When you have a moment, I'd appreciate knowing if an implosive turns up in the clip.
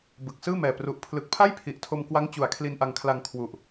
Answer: no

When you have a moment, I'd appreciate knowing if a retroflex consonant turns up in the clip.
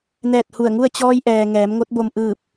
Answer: no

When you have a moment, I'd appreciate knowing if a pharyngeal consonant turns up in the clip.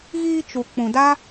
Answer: no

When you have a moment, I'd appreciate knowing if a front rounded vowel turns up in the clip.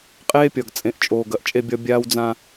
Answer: no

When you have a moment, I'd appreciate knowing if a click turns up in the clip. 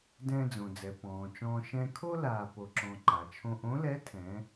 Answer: yes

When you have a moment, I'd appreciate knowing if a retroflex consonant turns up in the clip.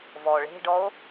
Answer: yes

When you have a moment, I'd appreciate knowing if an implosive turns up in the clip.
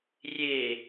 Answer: no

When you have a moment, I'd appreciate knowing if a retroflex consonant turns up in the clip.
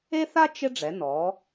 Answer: yes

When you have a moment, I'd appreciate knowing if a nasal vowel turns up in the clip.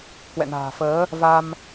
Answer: no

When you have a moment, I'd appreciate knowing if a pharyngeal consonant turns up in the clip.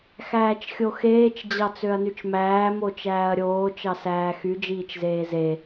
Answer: no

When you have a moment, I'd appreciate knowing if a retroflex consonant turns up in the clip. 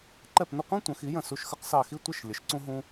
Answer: no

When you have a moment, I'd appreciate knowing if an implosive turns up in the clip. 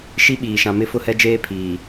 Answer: yes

